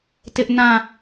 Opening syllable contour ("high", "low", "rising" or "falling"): high